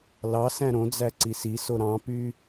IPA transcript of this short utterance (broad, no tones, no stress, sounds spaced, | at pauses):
l ɑ s æ̃ ɾ õ d͡z æ ǀ i s i s o ɾ ɑ̃ p y